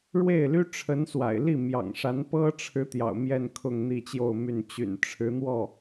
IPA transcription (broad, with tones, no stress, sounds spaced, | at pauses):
ɻ w e˥˩ ɪ̯ l y˥ ʈ͡ʂʰ ə˧˥ n s w a̰˨˩ ɪ̯ l i˥˩ m j ɑ̰˨˩ ŋ ʂ a˧˥ n p ɤ˥ ʈ͡ʂʰ ɻ̩˧˥ t̪ j ɑ̰˨˩ ʊ̯ m j ɛ˥˧ n kʰ ʊ˥˧ ŋ n̪ i˥˧ t͡ɕ j o˥˧ ʊ̯ m y˥˩ n t͡ɕ y̰˨˩ n ʈ͡ʂʰ ɻ̩˧˥ n̪ w ɔ˥˩